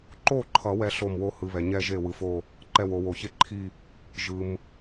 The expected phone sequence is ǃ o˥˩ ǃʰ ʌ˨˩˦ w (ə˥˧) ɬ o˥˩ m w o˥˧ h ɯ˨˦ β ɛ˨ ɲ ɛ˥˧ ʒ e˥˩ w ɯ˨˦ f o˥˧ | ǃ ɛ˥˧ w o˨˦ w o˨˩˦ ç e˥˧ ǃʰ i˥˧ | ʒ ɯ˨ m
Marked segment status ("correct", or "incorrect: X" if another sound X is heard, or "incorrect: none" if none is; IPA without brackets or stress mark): incorrect: ɛ˥˧